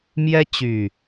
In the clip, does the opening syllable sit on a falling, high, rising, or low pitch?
high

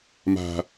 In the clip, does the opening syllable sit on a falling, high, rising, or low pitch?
high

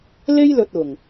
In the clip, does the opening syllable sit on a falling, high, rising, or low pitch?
high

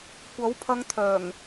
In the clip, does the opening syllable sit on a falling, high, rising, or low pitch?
rising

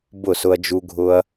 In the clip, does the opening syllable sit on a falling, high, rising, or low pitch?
falling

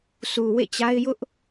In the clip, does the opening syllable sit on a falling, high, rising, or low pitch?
low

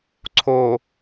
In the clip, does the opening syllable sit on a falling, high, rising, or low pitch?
low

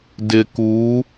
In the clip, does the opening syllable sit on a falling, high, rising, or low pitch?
low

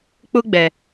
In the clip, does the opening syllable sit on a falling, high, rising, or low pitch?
high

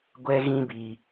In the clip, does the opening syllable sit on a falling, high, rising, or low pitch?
high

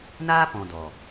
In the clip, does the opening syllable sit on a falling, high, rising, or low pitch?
high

